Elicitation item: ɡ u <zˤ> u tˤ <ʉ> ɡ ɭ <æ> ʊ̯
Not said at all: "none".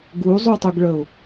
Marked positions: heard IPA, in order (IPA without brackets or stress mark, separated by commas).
zˤ, u, ə